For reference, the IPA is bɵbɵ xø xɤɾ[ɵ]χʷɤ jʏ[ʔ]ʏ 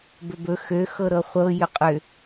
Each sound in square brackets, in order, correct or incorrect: incorrect, incorrect

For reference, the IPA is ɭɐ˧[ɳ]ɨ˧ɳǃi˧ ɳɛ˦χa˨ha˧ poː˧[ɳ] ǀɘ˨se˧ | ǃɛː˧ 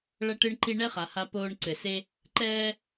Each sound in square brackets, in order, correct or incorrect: incorrect, correct

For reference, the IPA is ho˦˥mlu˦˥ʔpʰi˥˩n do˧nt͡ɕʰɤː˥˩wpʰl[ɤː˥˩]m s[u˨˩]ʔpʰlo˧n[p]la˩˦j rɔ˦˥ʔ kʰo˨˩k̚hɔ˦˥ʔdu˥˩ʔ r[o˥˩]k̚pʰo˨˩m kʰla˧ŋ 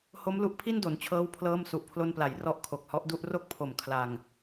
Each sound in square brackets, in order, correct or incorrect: correct, correct, correct, correct

